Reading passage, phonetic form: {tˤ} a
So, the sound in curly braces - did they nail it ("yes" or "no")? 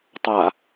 yes